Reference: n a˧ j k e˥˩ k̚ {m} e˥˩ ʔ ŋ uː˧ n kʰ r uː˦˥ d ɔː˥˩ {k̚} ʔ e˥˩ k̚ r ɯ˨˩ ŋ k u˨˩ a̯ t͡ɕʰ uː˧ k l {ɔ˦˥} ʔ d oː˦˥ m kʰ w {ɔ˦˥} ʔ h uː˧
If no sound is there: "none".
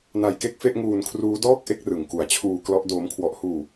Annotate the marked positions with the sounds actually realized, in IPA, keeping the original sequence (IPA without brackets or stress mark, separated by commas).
f, k̚, ɔ˦˥, ɔ˦˥